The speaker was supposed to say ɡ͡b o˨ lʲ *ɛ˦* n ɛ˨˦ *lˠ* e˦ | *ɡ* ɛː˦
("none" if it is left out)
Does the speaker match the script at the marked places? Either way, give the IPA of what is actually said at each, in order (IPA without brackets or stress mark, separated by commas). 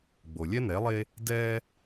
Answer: ɛ˦, lˠ, d